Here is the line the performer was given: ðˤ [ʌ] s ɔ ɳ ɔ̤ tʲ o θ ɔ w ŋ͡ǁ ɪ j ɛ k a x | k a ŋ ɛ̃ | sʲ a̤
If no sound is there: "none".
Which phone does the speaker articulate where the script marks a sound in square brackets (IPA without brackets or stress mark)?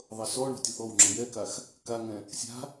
ʌ